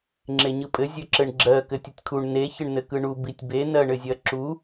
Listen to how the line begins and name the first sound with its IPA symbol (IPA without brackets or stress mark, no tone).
ŋ͡ǁ